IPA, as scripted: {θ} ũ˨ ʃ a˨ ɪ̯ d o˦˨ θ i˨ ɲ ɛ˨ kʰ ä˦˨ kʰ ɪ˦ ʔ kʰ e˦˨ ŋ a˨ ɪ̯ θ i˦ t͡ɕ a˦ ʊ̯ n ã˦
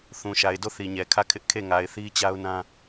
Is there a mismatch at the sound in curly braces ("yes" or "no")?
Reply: no